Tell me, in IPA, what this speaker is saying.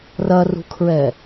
rɐrṳkʰɹɛ

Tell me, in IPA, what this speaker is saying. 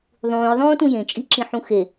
ðˤũːjðˤõːtũ jẽt͡ʃʼiǁĩħũ xe

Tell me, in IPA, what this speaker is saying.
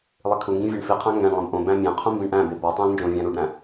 lˠikʰuŋɡĩ vʲeɳfiqʰæ̃ ŋɡæ̃ɳlˠẽb ʔõbæ̃ mʲæ̃qʰũ mbĩɳʔæ̃be bɒtˤæ̃l nd͡ʒõvʲæ̃ɾuɖɾæ̃

